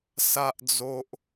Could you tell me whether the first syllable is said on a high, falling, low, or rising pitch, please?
high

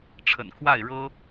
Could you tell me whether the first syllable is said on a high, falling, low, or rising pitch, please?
low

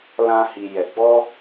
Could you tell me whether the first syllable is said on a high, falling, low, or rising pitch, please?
high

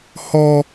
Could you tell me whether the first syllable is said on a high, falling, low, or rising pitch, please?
high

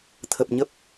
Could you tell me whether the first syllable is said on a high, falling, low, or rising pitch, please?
low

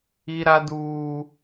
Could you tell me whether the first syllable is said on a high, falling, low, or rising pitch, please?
high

